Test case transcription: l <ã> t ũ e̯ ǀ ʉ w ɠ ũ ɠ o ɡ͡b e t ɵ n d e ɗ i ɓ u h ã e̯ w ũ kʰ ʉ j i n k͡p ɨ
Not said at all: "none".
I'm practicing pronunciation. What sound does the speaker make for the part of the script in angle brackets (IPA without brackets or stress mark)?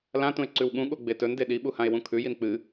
ã